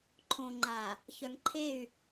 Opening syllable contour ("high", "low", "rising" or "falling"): low